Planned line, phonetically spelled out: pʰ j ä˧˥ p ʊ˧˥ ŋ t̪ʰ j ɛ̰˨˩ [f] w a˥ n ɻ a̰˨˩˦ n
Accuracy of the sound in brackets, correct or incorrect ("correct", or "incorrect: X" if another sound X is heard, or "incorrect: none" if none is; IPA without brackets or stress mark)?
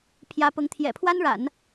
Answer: incorrect: pʰ